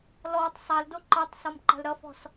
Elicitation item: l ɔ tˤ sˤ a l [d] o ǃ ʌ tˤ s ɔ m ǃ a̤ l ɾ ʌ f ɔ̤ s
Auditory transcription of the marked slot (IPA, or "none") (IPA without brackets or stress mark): d